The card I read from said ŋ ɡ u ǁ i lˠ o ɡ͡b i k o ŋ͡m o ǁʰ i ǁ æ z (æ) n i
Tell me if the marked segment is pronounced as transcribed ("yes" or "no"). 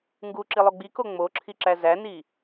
yes